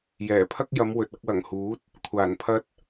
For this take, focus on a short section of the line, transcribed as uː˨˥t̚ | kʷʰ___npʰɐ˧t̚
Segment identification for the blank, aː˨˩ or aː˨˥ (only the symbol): aː˨˩